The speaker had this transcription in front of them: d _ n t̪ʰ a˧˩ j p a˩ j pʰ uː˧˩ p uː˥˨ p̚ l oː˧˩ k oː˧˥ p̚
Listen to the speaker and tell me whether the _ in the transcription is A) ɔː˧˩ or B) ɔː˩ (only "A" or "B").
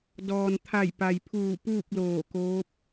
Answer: B